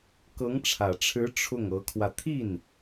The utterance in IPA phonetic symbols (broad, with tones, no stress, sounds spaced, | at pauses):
k ɤ˧˥ ŋ ʈ͡ʂʰ ä˨˩ ʈ͡ʂʰ ɻ̩˧˥ ʈ͡ʂʰ ʊ˥˩ ŋ ɤ˧˥ kʰ w ä˧ t̪ʰ i˥˩ n